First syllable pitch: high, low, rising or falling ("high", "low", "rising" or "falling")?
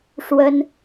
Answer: high